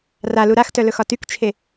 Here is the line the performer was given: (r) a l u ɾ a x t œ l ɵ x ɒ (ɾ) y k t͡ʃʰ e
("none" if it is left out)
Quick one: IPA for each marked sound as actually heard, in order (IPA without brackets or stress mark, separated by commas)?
r, t